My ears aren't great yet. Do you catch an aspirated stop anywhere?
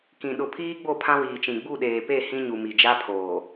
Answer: yes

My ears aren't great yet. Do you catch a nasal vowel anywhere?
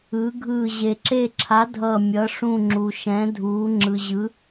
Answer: yes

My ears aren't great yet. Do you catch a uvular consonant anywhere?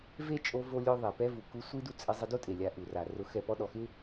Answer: no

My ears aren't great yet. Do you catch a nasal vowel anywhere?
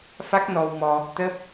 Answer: no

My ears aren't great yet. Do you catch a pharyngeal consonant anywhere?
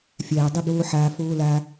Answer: yes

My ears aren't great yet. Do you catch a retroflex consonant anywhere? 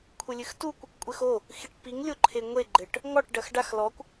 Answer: yes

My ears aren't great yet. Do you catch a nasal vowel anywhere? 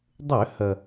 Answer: no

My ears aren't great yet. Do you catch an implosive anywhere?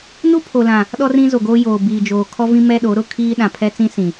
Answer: yes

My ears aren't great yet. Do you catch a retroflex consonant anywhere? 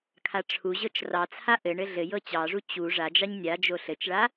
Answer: yes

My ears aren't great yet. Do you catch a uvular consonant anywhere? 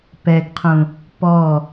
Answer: yes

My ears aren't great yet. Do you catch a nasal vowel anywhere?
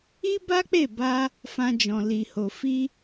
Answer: yes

